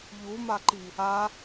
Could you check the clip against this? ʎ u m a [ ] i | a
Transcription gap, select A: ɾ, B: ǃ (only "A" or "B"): B